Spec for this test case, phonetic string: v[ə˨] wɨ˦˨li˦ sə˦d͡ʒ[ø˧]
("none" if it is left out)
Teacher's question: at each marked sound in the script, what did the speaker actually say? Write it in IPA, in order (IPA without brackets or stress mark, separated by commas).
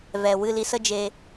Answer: ɛ˨, e˧